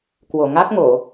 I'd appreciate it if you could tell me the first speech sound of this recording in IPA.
k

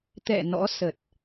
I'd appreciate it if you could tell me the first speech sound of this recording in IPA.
t̪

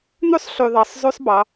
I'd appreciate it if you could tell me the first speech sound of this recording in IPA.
n̪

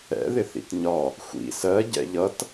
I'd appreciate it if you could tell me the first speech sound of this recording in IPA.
ɛ̰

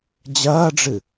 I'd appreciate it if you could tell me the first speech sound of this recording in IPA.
d͡ʑ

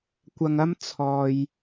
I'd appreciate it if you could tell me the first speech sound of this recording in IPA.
kʷ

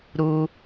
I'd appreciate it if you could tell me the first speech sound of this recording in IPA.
ɾ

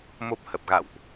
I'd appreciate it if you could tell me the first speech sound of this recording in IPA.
m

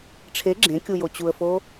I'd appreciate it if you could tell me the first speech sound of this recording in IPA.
ʈ͡ʂʰ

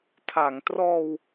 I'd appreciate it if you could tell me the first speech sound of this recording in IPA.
tʰ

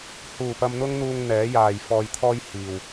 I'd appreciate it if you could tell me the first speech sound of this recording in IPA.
h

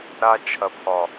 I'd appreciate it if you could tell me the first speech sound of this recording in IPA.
ɾ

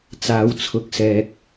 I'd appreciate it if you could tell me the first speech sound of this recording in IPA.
t͡s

